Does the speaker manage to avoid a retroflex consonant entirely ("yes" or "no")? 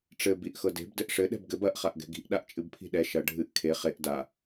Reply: no